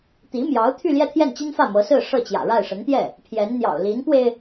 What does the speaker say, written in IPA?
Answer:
t̪ i˧˥ m j ɑ˧˥ ʊ̯ t̪ʰ y˥˧ l j ɛ˥˧ t̪ʰ j ɛ˥˩ n t͡ɕ i˥ n f ä˥˩ m ɤ˧˥ s ɹ̩˥˧ ʂ ɤ˥˩ t͡ɕ j ä̰˨˩ ɻ a˥˩ ɪ̯ ʂ ə˧˥ n t̪ j ɛ˥˩ | pʰ j ɛ˧˥ n n̪ j ɑ̰˨˩ ʊ̯ l i˧˥ n p w e˧ ɪ̯

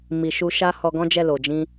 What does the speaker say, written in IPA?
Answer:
m i˨ ʃ u˧ ʃ a˦ h ɔ˧ ɡ ɔ̃˦ d͡ʒ ɛ˦˨ l o˨ d͡ʒ ĩ˧

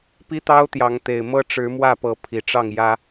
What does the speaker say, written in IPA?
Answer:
p i˦ t̪ ɑ˦ ʊ̯ t̪ j ɑ˨˦ ŋ t̪ e˨˩ ɪ̯ m ɤ˦ ʈ͡ʂ ɻ̩˨˦ m w ä˥˨ p ɤ˨˦ pʰ i˨˩ ʈ͡ʂ ɑ˥˨ ŋ j ä˦

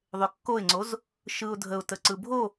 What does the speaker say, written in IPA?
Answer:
ðˤ ø kː o ɪ̯ ŋ͡ǀ o z | ʃ ɯ ʊ̯ dʱ ə ʊ̯ t ə ǀ ɯ bʱ o

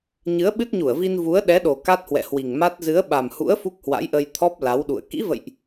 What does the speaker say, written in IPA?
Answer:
ɲ ɨ˨˦ ə̯ ɓ ɨ˦˥ t̚ ɲ u˧˩ ə̯ v i˧ n v u˨˦ ə̯ ɗ ɛ˨˦ ɗ o˨˩ k a˦˥ t̚ h w ɛ̰˧˨ h w i˨˩ ŋ m a˦˥ t̚ z ɨ˨˦ ə̯ ɓ a˨˩ m h ṵ˧˥ ə̯ f u˦˥ k̚ h w a̰˧˥ j ʔ ə˧ j t̪ʰ ɔ˦˥ p̚ l a˨˦ w ɗ ṵ˧˨ ə̯ k ḭ˧˥ v ə̰˧˨ j ʔ

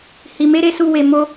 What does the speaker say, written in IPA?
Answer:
h i˨ m e˨˦ ɾ e˧ s u˧ w e˨ m o˧

